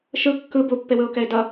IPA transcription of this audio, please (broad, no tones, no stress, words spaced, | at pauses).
ʃɯ kːɯ bupːewɯʊ̯kɛɪ̯ dʌ